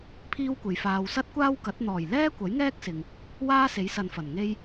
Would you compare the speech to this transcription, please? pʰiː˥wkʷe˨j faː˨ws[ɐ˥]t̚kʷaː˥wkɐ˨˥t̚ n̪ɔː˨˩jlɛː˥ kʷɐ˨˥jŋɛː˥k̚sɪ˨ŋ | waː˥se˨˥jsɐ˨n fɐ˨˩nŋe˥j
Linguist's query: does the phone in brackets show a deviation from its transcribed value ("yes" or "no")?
no